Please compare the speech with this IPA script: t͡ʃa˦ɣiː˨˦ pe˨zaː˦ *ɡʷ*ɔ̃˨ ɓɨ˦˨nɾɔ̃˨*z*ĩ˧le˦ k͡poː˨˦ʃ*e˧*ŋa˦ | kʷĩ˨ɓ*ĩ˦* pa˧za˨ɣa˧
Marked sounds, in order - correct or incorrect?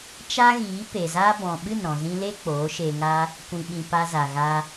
incorrect: b, correct, correct, incorrect: ĩ˨

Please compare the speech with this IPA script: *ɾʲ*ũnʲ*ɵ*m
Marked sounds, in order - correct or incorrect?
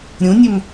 correct, correct

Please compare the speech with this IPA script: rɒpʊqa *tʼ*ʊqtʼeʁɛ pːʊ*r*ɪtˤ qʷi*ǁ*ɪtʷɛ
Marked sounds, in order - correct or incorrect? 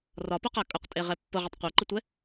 incorrect: kʼ, incorrect: ʁ, incorrect: ǃ

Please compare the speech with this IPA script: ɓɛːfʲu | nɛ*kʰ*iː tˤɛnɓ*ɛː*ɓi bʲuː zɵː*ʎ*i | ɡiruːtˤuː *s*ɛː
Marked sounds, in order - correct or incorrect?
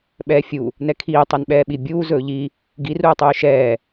correct, correct, correct, incorrect: ʃ

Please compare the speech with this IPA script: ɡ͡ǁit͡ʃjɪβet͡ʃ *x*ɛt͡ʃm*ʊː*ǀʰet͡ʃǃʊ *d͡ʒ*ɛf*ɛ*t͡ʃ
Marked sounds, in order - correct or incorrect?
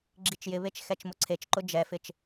correct, incorrect: ʊ, correct, incorrect: ɪ

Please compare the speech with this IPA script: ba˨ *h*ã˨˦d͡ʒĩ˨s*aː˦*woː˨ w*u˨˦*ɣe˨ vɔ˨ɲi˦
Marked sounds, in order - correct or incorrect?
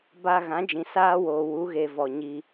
incorrect: ɣ, correct, correct

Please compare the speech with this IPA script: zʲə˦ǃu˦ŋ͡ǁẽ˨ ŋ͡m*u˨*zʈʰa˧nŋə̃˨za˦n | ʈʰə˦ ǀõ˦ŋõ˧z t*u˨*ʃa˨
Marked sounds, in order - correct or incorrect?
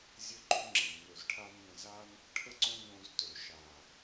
incorrect: ø˨, incorrect: ø˨

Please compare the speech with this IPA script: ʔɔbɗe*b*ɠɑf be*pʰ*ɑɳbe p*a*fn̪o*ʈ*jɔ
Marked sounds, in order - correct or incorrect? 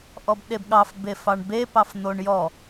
correct, incorrect: f, incorrect: ɑ, incorrect: ɳ

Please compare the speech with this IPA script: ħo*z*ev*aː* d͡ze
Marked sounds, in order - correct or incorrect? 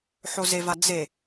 correct, incorrect: a

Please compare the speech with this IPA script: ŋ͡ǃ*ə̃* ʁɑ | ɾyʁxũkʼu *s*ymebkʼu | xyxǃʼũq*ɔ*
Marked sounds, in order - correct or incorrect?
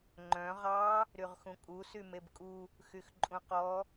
incorrect: œ̃, correct, correct

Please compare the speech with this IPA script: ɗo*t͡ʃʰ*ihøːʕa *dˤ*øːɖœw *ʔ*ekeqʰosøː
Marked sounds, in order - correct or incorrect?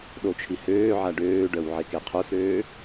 correct, incorrect: ɖ, incorrect: ʕ

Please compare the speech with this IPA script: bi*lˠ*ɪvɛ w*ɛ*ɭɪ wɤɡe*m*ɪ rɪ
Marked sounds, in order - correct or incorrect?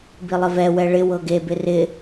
correct, correct, incorrect: b

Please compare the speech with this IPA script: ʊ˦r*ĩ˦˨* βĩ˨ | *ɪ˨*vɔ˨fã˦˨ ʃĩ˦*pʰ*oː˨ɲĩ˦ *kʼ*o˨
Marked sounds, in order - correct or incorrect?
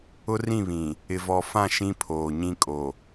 correct, correct, correct, correct

